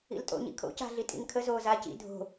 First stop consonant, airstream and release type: ejective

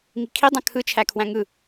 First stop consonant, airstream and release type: aspirated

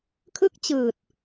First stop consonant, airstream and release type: aspirated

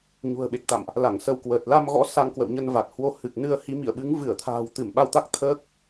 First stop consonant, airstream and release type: implosive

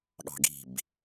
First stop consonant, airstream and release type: implosive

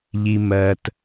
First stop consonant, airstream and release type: plain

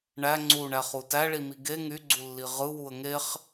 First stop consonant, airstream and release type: click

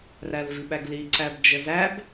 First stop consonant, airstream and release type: implosive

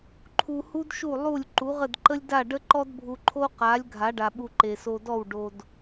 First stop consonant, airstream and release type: click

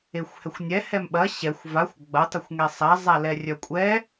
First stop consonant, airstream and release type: implosive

